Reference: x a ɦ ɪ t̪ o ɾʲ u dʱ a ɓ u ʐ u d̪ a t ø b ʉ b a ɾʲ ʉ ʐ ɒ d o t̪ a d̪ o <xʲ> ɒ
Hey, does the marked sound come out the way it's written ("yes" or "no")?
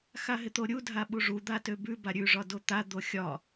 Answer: yes